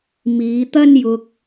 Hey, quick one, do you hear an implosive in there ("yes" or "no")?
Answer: no